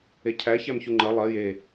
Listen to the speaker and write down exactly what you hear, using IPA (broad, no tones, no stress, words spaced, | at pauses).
ecʰæ çæmçuŋ͡ǃɐ lˠɐ je